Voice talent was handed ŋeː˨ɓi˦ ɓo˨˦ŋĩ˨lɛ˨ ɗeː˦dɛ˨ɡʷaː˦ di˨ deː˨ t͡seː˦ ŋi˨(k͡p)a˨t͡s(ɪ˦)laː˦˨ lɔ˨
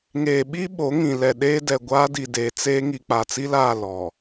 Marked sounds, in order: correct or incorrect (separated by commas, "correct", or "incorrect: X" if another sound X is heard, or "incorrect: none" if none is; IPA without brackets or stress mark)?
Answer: correct, incorrect: i˦